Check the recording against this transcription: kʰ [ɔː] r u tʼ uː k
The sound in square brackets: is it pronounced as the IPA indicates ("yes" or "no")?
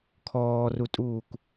yes